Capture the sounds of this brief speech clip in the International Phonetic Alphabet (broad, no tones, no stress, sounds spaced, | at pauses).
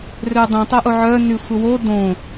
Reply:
r ø dˤ ĩ tˤ œ ʔ o ʕ œ n y sʷ ə w o d õ